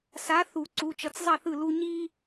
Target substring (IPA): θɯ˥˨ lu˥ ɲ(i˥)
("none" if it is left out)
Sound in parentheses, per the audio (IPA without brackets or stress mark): i˥